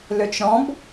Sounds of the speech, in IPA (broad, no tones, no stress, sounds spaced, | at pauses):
l ø t͡ʃ ɾ ɔ̃ b